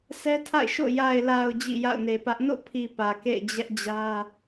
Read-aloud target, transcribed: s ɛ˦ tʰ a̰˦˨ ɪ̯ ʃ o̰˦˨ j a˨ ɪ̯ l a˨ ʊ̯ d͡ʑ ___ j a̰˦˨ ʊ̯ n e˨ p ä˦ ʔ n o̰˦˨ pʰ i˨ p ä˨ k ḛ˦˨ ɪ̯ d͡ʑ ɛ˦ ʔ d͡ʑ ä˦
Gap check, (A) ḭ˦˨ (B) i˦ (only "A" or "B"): A